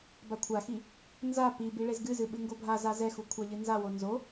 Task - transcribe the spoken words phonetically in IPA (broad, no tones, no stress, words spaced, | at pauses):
bakʷʰaxi | nza pi biɭezɡɨzɨ ɓɨŋɡobʱaza zɛxu kʷʰaʎɨnzawo nzo